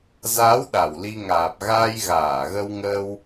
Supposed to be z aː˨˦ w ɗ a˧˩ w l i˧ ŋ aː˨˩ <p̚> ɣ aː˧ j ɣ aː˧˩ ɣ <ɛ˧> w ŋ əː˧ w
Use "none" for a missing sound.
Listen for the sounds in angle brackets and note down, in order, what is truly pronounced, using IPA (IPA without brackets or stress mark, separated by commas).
p̚, ə˧